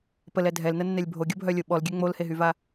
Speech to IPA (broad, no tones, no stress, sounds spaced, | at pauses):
p ə l ɛ dʱ ɛ l n ə nː ɛ lʲ bʱ o ɡʲ o bʱ œ lʲ o ɓ ɔ l ɡʲ ø ŋ͡m o l h e ɦ y v a